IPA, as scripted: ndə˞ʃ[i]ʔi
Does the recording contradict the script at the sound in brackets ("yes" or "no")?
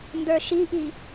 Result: no